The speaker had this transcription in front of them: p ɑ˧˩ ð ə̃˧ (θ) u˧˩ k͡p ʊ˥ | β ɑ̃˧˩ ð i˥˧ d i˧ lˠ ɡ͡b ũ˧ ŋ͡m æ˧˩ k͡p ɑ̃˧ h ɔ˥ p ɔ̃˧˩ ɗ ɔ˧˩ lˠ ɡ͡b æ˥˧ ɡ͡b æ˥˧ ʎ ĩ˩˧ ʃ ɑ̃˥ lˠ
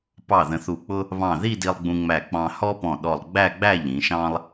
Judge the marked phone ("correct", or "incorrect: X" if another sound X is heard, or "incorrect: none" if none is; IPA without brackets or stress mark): correct